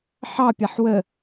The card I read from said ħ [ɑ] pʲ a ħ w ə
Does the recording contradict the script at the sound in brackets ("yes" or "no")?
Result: no